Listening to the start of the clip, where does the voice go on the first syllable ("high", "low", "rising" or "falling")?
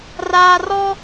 low